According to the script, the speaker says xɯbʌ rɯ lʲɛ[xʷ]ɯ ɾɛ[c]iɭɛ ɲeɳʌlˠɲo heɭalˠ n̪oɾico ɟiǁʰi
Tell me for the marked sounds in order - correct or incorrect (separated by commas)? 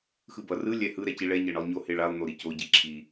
incorrect, correct